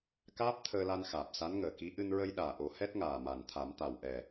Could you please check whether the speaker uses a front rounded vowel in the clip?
no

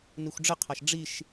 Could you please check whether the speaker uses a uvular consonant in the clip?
yes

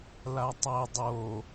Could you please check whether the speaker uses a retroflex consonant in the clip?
no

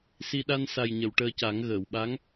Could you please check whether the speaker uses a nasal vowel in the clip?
no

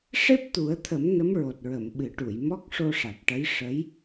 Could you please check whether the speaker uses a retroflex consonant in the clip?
yes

